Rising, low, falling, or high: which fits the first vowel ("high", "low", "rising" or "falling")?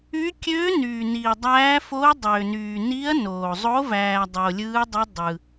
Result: rising